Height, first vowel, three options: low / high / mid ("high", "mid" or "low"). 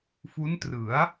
high